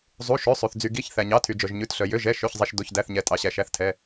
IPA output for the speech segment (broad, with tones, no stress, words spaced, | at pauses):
zˤu˩˧˩ ʃø˩˧˩sˤʉ˩θ d͡zy˩ɡi˩˧˩ç θæ˩ɲɑ˩˧˩tʰy˩ d͡ʒœ˩ʒɲʉ˩˧˩tɬœ˩ jø˩˧˩ʒ ɛ˩˧˩ʃø˩˧˩çzˤi˩ʃ do˩˧˩çdæ˩˧˩θɲɛ˩ tʼɑ˩ɕæ˩ʃæ˩˧˩θtʰɛ˩˧˩